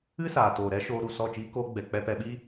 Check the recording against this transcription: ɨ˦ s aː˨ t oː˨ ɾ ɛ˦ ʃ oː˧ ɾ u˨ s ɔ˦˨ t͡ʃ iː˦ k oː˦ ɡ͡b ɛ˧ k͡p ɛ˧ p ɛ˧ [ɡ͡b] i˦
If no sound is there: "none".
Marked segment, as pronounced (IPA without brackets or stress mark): ɓ